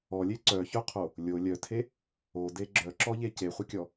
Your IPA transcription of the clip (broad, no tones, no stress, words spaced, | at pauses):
ɔlʲe ǀœçœqʰo | lʲo lʲœtʰe | ode ɡ͡ǁœǁɔʎe ceχʷɐkʲɔ